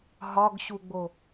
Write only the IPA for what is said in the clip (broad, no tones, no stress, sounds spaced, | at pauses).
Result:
ɦ ɒ ɡ ɕ u ɡ͡b o